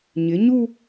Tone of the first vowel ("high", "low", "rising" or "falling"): rising